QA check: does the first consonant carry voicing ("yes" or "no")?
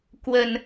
no